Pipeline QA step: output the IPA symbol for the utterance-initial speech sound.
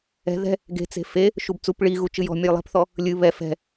ɛ̤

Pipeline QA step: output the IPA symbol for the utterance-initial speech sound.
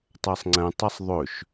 tˤ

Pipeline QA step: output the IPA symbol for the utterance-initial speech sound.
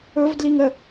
ɵ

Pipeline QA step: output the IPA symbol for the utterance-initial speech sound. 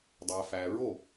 dˤ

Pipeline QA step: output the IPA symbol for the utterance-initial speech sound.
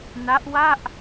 n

